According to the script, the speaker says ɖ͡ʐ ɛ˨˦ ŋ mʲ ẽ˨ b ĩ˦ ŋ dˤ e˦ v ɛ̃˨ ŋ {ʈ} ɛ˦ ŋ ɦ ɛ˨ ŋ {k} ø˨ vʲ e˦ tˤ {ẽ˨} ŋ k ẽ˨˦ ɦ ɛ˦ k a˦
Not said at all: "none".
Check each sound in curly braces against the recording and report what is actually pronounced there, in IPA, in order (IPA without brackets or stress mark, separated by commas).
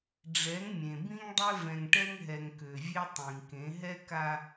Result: ʈ, k, ĩ˨